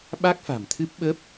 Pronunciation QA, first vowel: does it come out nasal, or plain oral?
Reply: oral